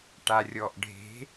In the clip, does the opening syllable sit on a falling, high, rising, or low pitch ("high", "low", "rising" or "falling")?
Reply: low